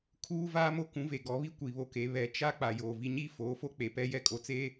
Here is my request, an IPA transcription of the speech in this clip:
kʰuː˦vaː˦mo˦ kũ˨˦ve˨ɡɔ˨˦βi˦ kʷi˨βo˦ke˨˦ βɛ˨˦t͡ʃa˦ k͡pa˨joː˨ vi˨ɲiː˦ foː˨˦fo˦ k͡pe˨pɛ˦ jɛ˦kʼo˨t͡seː˦

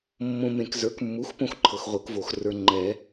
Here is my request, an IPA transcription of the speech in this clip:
mːõ˨mẽ˨kzə˞˩˥kmːu˩˥x põ˦xǃʰɤ˨xʁʷɤ˨˩˦kvo˨˩˦x rə˞˨ŋ͡ǃɛ˨˩˦

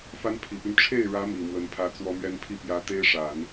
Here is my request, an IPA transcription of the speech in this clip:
fa˥n pʰi˨˩py˦n ʈ͡ʂʰe˥˩ɪ̯ɻä˧˥ mi˨˩mwə˧˥npʰä˥t͡swɔ˥ mɥɛ˥npʰi˥˩ pjä˧˥ t̪e˥ɪ̯ʂa˨˩˦n

